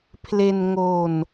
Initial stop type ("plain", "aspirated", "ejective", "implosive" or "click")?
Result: aspirated